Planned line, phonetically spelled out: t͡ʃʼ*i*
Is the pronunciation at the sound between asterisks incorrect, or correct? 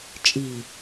correct